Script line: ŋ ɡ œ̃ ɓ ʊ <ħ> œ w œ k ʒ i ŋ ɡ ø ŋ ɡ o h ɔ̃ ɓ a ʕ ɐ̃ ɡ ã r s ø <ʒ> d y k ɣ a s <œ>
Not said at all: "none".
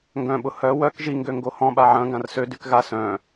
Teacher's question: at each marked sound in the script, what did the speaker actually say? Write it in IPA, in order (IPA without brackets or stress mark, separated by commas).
h, none, œ̃